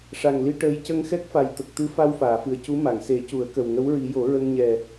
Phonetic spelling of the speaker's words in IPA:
ʂ a˨˩ ŋ l i˧ ʈ əː˧˥ j c ə˧ ŋ x ɛ˦˥ k̚ f a˨˩ j t̪ ə˨˩ k̚ t̪ ɨ˧˥ f a˧ w f aː˨˩˨ f ɨ˨˩ ə̯ c u˧˥ m a˨˩˨ ŋ s e˨˩˦ c u˨˩˦ ə̯ k ə˨˩ w ŋ ə˧˥ w ɹ i˨˩˦ j o˨˩˦ ɹ ə˧ ŋ ɲ ɛ˨˩

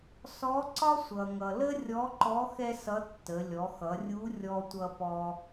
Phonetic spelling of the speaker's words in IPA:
s ɔ˧˥ ǀ ɒ˥ sʷ ʌ˩ ŋ ʌ˩ l ə˥ rʲ ɔ˧˥ ǃ ɔ˧˥ x ɛ˥ s ʌ˧˥ tː ə˩˧ lʲ ɔ˩˧ x ʌ˩˧ rʲ u˧˥ rʲ ɔ˧ tʷ ʌ˧ p ɔ˧

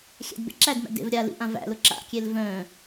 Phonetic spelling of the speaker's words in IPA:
xʲ æ̰ d b ḛ ǁ æ d m æ̰ d ḛ v ɾʲ a l ḭ ʔ ã v æ̰ l ʊ ǁ a̰ kʲ e l v œ̃

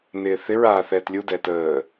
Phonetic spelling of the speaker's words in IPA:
n ɪː θ ɪ ɹ aː θ ɛː t lʲ u d ɛː t əː

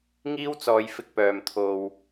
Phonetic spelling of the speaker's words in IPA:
ŋ iː˥ w t͡s ɔː˨˧ j f ɪ˧ k̚ p œː˨ m t̪ʰ o˨ w

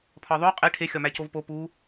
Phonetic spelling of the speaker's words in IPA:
pʰ ɒ ðˤ o qʼ e ʈʰ e xʲ ɒ m æ c o v p o p u

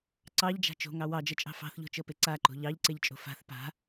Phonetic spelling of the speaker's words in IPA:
ǀ ɑ ʎ d͡ʒ a̤ t͡ʃ o̤ ŋ ɑ w ɑ d͡ʒ ɤ t͡ʃʼ ɑ̤ f ɑ̤ θ ʎ o̤ t͡ʃ ɤ p e ǀ a ǃ o̤ ʎ ɑ ʎ ǀ e ʎ t͡ʃʼ o̤ f a̤ θ p a̤

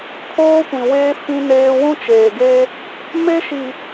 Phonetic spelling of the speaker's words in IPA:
kʰ oː˦ kʷ ĩ˨ w eː˦ f ĩ˦ n eː˦ w ũ˦ t͡ʃ eː˨ ɡ e˦ | m e˦ ʃ i˨

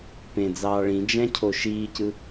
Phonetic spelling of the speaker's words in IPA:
p ẽ d͡z ɑː ɭ ĩ d͡ʒ æ̃ cʰ o ʃ iː c ɯ

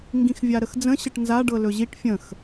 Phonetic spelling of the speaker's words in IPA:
ŋ ɡ ĩ x vʲ a ɾ ə x d͡z ə̃ ɕ ɘ ʈ n z a ɖ ɤ l ɵ ʑ i ʈ fʲ ə̃ x

